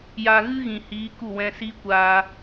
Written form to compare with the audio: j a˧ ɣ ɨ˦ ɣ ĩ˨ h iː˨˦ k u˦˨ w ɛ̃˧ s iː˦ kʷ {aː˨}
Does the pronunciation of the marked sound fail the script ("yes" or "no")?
yes